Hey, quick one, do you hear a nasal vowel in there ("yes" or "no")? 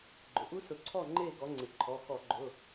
no